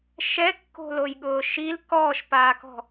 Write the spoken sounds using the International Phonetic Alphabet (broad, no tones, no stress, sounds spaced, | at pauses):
ʃ ɛ kː o̤ l o j ɠ ʊː ʃ i l k ɔː ʃ p aː k ɔ̤